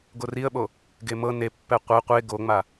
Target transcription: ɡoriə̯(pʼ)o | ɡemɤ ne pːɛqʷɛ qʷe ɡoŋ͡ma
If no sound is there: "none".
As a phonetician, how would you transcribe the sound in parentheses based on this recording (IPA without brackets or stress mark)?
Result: ɓ